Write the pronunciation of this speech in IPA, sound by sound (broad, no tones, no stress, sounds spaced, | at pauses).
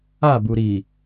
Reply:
a b u ɾ i